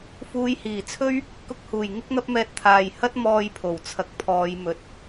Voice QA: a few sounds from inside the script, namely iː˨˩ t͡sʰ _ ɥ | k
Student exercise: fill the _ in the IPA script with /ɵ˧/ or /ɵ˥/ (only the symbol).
ɵ˥